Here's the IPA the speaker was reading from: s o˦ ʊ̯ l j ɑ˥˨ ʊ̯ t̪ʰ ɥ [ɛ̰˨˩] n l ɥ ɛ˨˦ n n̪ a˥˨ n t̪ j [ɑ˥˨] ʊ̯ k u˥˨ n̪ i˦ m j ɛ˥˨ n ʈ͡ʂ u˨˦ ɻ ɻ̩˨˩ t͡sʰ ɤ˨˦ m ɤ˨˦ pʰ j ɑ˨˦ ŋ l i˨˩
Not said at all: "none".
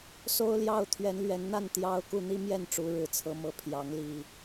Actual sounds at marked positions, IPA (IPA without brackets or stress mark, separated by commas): ɛ˨˦, ɑ˦